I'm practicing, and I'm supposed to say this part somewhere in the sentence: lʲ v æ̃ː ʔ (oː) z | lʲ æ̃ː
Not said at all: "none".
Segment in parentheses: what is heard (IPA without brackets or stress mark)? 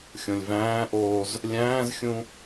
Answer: oː